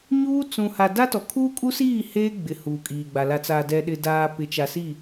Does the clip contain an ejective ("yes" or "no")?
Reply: yes